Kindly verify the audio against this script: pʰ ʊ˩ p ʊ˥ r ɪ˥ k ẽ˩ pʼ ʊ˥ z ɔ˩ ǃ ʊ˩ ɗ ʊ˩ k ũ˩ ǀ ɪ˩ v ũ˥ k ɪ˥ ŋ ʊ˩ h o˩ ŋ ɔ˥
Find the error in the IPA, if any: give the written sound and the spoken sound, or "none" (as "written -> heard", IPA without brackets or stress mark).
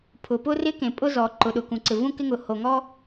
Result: none